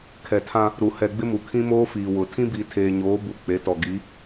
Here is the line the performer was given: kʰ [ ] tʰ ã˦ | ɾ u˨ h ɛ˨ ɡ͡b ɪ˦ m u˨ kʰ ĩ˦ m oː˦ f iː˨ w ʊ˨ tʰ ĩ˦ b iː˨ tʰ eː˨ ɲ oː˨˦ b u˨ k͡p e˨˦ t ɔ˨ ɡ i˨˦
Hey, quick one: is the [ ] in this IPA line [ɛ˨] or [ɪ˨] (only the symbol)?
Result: ɛ˨